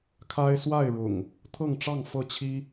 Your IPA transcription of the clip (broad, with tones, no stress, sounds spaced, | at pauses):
kʰ a˦ ɪ̯ s w a˥˨ ɪ̯ ɻ ʊ̰˨˩ ŋ | t̪ʰ ɤ˥˨ ŋ ʈ͡ʂ ɑ˥˨ ŋ f ɤ˥˨ t͡ɕʰ i˦